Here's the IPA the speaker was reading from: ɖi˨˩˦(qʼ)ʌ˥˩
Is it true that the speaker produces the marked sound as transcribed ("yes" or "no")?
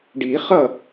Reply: no